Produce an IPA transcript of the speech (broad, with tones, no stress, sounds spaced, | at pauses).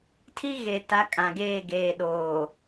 tʰ i˦ ɣ e˨ t a˨˦ kʼ ã˨ ɡ eː˦˨ ɡ eː˨ ɗ oː˨